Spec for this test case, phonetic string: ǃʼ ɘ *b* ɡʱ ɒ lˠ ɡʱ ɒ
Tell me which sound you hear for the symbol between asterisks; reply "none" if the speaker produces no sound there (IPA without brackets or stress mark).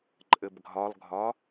b